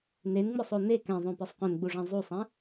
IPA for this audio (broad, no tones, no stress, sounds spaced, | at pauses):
n e n ŋ͡m ɨ sˤ o n e k ɛ̃ zˤ õ p e sˤ q õ n ɡ͡b u ʐ ã zˤ u sˤ ɛ̃